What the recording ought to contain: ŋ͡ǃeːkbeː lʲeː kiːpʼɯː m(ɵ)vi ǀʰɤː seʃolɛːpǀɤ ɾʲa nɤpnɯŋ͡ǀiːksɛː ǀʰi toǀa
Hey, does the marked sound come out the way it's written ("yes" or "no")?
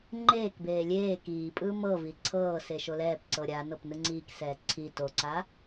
no